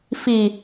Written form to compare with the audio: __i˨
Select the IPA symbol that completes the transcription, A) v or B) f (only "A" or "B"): B